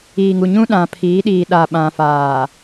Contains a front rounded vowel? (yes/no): no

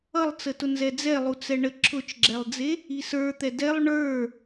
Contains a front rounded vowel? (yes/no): no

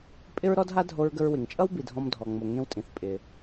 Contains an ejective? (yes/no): yes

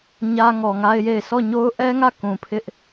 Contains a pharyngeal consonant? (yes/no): no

